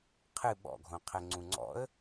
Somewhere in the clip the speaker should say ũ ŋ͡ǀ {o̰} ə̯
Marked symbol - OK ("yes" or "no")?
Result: no